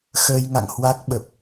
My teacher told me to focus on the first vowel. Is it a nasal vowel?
no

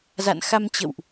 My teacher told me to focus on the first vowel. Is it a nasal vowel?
no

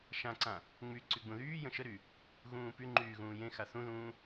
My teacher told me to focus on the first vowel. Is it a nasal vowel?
yes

